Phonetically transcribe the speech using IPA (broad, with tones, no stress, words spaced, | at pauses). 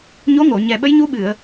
ɲo˧˥ŋo˨˩˨ɲɛ˨˩ ɓə˧˥jɲu˧˥ɓɨ˨˩˨ə̯